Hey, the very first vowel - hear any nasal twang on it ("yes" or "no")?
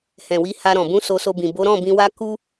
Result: yes